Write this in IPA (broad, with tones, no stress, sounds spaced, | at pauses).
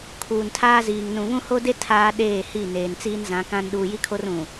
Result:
kʰ uː˨ n tʰ aː˦ z iː˨ ŋ n ũ˨ β ũ˦ h o˦ d e˦ tʰ aː˦ ɗ eː˦˨ h i˦˨ n eː˨ n t͡s iː˦ n z ã˨˦ k ã˦ n ɗ uː˨ j i˦ kʰ o˦ r ũ˨